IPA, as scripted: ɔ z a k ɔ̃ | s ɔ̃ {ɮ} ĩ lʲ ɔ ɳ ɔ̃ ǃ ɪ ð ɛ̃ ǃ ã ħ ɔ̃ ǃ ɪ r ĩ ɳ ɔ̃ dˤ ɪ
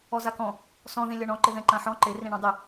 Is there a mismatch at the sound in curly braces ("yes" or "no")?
yes